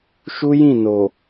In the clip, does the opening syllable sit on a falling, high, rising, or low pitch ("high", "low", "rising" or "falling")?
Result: high